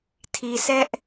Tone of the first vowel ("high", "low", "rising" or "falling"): low